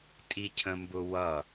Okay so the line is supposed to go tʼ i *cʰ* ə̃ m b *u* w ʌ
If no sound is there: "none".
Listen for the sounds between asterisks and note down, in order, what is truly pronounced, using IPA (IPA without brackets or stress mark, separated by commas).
cʰ, ʊ